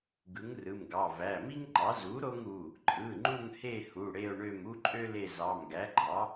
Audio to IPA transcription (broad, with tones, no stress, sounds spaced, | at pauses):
ɡ ɯ˩˥ ŋ r ɯ˩˧˩ m ɡ ɑ˩˧˩ v æ˩˧˩ m i˥ ŋ ŋ͡ǃ ɑ˩˥ z u˩˥ ɾ o˥ ŋ u˩˧˩ | ǃʼ ɯ˩˧˩ ŋ͡ǃ u˦˨ ŋ h e˦˨ h u˩˧˩ ɽ e˦˨ o̯ ɳ ø˦˨ m u˥ ǃʼ ø˥ l e˦˨ z ɑ˩˧˩ m ɡ æ˩˥ ɡ͡ǃ ɑ˩˥